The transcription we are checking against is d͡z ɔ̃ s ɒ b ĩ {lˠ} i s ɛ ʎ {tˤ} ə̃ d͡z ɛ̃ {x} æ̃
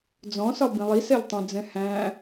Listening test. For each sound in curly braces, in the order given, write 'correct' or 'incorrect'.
correct, correct, incorrect

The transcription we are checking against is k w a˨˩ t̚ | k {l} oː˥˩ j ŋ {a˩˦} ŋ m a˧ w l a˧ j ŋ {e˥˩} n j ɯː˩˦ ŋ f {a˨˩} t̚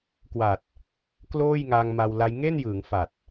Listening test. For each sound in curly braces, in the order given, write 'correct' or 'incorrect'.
correct, incorrect, correct, correct

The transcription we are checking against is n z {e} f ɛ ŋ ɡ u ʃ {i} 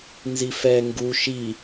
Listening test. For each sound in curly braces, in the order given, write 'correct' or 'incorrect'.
incorrect, correct

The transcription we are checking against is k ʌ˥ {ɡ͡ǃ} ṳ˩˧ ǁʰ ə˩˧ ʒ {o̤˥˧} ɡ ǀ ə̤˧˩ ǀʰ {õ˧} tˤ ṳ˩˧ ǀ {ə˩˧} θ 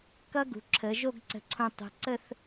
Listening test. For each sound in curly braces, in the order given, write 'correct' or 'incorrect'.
incorrect, incorrect, correct, incorrect

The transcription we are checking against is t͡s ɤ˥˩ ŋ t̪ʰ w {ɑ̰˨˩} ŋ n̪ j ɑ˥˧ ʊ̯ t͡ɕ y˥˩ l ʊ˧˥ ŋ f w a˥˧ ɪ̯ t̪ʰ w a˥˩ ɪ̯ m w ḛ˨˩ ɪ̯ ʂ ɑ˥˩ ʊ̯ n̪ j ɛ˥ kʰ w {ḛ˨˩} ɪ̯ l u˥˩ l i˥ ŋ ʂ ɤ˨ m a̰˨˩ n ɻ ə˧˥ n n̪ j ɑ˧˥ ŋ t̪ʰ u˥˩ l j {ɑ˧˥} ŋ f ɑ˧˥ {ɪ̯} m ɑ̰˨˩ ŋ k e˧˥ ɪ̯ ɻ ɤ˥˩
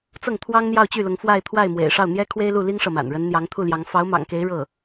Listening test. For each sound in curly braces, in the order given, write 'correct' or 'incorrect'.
incorrect, incorrect, correct, incorrect

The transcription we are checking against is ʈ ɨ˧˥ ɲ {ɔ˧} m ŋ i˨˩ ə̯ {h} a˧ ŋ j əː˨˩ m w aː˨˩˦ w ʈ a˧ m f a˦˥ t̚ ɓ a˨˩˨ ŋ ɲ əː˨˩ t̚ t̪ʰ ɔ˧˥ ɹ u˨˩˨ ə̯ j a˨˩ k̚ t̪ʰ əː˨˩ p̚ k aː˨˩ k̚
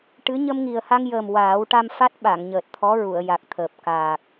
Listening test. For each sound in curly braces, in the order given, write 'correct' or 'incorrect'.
incorrect, correct

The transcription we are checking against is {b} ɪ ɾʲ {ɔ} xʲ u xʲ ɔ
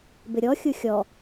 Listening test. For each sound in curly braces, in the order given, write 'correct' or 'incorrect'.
correct, correct

